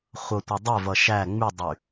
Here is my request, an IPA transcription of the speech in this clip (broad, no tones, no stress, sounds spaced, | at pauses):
χʷ ʌ tʷ ɛ dˤ ɛ v ʌ ʃ æ ŋ͡m y dˤ y